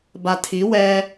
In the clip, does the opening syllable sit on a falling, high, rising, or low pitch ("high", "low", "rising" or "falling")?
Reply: low